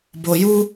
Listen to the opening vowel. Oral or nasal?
oral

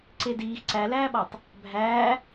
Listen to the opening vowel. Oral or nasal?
oral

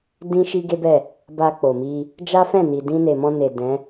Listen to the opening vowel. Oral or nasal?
nasal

